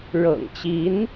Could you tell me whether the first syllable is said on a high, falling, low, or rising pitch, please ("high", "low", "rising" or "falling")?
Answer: low